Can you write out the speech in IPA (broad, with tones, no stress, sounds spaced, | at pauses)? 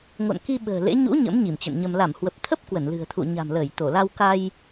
ŋ o̰˧˨ n k i˧ ɓ ə̤ː˨˩ l ḛ˧˥ ɲ ṵ˧˥ ɲ ə̰˧˥ m ɲ i˧˩ m t͡ɕ ə̰˧˨ n ɲ ə˧ m l a˧˩ m h w ə˨˩ p̚ t̪ʰ ə˦˥ p̚ k w ə˧˩ n l ɨ̤˨˩ ə̯ t̪ʰ ṵ˧˨ ɲ a̤˨˩ m l əː˧˩ j t̪ o˧˩ l a˧ w k a˧ j